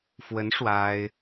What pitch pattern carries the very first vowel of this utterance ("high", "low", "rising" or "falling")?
rising